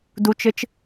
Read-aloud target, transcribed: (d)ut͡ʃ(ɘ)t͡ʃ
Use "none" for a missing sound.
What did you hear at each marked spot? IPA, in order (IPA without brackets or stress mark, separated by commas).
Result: d, ɘ